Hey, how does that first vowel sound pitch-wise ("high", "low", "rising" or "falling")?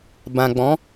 low